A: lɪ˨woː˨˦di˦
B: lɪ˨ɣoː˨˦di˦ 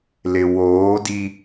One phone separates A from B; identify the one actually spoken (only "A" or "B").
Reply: A